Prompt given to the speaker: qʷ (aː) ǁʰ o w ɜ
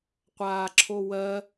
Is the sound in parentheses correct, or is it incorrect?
correct